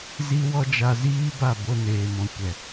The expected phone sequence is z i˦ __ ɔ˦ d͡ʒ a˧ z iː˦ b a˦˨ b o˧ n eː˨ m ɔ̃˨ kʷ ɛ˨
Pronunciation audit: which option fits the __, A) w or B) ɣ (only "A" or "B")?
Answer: A